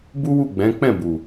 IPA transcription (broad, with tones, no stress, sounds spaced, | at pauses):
b u˦ w u˦˨ ɡ͡b ɛ̃˨˦ k͡p ɛ̃˦˨ b u˨